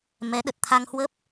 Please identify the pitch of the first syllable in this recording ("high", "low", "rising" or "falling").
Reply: rising